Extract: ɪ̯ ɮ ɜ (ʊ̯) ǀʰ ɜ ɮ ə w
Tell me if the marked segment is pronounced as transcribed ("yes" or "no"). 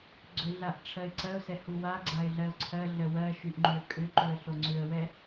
yes